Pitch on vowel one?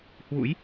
rising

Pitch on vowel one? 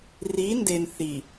rising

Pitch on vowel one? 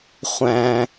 low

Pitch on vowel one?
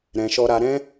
low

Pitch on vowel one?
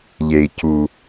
low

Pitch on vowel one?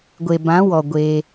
low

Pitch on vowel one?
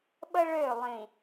high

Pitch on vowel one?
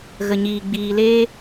low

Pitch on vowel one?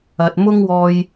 low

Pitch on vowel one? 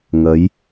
rising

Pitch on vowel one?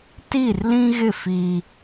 falling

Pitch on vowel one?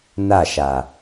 falling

